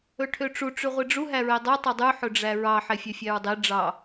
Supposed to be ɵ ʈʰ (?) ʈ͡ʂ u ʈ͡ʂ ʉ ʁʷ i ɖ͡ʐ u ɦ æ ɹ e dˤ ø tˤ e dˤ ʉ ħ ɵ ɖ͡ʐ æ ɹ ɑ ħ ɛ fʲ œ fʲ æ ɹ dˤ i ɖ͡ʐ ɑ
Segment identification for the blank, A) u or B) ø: B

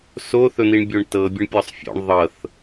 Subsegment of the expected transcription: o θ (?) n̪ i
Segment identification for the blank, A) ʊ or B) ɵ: B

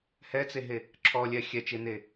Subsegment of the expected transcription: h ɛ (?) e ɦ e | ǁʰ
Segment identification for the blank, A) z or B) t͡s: B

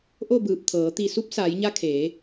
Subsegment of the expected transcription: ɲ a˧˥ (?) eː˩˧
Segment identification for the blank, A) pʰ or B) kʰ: B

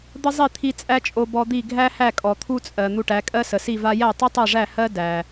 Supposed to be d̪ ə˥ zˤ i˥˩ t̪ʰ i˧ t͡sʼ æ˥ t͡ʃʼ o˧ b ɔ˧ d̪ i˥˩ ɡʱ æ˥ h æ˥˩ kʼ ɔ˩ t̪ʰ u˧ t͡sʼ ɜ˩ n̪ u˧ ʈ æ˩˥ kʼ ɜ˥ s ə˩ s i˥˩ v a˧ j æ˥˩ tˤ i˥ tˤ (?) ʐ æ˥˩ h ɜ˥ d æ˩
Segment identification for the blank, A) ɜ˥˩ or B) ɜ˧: A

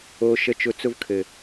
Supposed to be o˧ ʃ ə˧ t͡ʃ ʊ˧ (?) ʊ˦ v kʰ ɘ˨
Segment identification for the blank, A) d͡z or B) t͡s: B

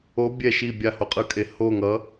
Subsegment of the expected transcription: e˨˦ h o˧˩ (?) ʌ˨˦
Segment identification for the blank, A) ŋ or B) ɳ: A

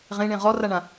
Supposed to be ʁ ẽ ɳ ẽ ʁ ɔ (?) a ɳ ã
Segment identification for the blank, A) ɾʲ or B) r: B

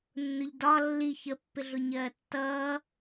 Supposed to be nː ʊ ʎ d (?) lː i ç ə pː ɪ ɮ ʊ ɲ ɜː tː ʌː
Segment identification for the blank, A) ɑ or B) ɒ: B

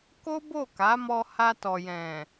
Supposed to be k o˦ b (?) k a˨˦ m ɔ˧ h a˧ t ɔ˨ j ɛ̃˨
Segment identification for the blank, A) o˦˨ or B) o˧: A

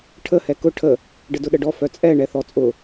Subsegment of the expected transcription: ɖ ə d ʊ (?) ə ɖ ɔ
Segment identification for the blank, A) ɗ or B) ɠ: A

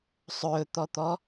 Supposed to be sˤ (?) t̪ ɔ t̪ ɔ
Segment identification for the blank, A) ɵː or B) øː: A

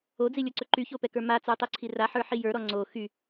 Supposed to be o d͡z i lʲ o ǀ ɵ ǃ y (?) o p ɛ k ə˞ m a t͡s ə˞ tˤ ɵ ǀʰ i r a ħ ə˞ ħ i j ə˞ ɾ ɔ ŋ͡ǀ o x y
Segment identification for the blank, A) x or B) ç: B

